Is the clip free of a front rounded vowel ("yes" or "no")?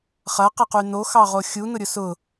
no